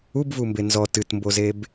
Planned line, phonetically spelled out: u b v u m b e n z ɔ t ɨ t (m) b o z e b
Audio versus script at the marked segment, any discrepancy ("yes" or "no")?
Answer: no